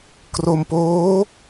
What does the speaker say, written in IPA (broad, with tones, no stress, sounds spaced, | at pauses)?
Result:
k r o˧ m p oː˦˥